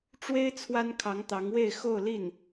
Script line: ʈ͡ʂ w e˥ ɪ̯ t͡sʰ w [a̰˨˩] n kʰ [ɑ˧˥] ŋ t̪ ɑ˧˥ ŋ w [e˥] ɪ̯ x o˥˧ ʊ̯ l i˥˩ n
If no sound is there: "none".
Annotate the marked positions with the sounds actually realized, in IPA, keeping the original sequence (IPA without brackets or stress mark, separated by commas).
a˥, ɑ˧˥, e˥˧